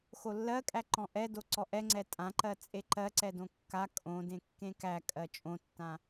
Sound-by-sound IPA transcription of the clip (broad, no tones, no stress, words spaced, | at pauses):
xolːɜkʼæ ǃɔ̃ʔɛdo ǀɔʔɛ ŋ͡ǀɛtʼãǃɜ t͡sʼeǃɜǀɛ dõkːa kʼõ dẽkːẽkæ kʼɜt͡ʃʼõtːã